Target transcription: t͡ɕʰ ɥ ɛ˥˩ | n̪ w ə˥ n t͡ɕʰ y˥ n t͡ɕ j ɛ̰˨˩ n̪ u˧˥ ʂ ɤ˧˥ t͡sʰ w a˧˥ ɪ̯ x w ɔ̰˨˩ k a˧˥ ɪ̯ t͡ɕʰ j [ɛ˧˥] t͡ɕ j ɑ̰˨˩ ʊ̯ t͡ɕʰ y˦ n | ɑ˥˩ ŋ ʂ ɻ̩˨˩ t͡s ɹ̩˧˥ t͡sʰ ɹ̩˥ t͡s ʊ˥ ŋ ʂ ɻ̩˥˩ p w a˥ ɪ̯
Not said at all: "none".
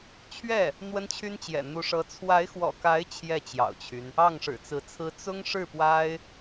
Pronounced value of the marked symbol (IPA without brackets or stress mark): ɛ˥˩